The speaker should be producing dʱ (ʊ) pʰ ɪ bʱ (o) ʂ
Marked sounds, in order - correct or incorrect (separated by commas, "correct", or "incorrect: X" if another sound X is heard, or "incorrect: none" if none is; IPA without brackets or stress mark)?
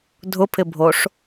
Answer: correct, correct